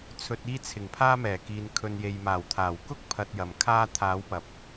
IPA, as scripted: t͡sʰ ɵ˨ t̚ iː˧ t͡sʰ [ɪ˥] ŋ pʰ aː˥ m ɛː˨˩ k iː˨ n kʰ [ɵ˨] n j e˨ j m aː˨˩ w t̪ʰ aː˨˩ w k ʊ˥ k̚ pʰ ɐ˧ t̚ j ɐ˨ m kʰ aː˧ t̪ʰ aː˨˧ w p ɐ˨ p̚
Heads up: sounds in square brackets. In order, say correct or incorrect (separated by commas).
incorrect, correct